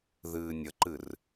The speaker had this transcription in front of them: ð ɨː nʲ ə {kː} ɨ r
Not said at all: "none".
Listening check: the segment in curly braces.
ǃ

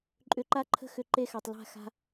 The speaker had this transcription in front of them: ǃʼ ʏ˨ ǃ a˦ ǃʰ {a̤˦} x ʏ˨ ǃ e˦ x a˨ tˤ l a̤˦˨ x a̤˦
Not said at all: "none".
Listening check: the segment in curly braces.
ə̤˦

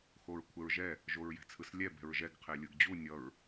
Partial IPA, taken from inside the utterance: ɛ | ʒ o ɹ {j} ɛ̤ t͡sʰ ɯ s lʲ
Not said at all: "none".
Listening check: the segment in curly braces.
j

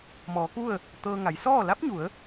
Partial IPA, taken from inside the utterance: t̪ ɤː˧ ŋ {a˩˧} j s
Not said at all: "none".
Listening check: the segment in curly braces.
a˩˧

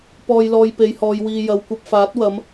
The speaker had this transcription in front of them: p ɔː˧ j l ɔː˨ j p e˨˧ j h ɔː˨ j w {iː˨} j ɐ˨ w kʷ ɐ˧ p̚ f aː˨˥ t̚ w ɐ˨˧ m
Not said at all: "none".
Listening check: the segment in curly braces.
iː˨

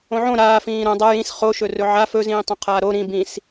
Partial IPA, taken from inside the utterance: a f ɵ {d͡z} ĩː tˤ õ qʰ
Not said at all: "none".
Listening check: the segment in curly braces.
z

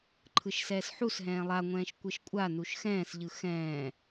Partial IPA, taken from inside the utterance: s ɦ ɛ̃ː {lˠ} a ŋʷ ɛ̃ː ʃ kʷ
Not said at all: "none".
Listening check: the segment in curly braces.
lˠ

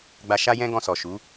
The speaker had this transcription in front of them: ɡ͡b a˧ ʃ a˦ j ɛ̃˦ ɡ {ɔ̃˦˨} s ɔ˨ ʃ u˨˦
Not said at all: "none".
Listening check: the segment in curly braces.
ɔ̃˧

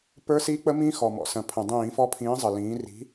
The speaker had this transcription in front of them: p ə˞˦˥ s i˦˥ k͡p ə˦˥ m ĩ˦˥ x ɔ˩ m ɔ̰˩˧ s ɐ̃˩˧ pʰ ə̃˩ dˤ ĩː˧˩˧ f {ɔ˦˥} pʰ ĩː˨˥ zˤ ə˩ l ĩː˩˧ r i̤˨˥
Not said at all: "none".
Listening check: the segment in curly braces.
ɔ˦˥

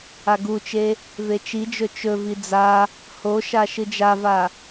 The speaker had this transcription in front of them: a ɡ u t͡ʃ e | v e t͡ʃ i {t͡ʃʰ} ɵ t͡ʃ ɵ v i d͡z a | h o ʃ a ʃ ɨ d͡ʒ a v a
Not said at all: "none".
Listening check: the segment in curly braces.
d͡ʒ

